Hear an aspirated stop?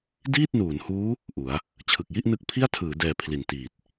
yes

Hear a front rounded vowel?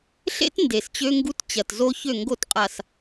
yes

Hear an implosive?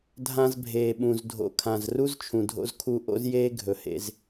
yes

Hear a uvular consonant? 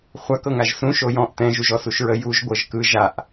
yes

